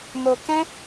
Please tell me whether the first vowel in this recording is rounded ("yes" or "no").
yes